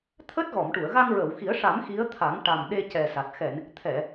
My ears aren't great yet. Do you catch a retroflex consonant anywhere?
yes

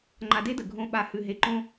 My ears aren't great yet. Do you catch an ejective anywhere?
no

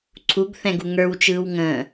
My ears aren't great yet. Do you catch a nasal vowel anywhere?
yes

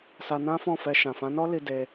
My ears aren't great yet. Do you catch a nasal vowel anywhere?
yes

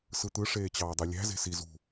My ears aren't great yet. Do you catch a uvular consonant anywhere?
no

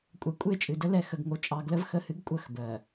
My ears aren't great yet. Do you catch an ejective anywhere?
yes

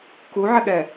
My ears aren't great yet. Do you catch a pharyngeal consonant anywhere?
yes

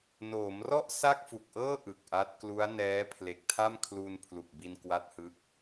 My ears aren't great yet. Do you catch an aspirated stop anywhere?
yes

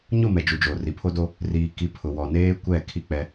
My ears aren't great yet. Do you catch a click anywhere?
no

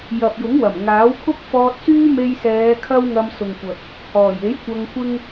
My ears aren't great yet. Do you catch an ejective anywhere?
no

